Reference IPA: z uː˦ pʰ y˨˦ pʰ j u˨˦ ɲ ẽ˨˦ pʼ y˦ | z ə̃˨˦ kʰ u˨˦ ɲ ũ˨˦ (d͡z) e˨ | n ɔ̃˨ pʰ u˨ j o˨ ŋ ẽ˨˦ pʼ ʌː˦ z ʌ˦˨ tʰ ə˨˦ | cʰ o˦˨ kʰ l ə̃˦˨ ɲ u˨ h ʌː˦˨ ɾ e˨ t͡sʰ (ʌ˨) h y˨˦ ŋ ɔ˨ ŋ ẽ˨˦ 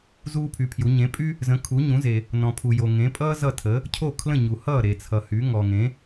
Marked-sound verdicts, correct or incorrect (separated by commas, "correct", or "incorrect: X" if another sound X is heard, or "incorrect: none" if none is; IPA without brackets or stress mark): incorrect: z, correct